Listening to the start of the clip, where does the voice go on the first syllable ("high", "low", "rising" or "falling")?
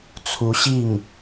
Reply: rising